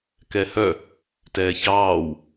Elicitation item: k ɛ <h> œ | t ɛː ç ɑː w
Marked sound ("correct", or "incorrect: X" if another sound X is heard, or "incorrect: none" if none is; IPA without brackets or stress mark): correct